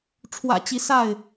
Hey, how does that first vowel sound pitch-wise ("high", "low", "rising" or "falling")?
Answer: low